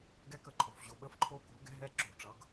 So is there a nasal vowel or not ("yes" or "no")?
no